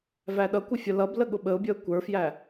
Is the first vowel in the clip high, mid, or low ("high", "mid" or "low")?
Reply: low